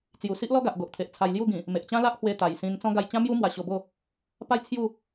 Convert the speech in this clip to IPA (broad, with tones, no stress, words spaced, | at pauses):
t͡sju˨˩si˦ʔlɔ˦ɡa˨ʔ ɡo˨ʔt̪ʰe˨ʔ t͡sʰa˧jlju˥˧ɡĩ˨˩ | me˨ʔt͡ɕã˦la˦ʔ hwe˧ t̪a˨˩jsĩ˧n t͡sɔ̃˦ ɡa˧jt͡ɕã˦mju˦ mwa˧ɕo˧bo˥˧ | pa˥˧j t͡sʰju˥˧